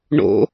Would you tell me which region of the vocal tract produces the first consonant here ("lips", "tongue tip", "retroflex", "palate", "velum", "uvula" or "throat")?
retroflex